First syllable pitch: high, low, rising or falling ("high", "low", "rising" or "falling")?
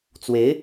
rising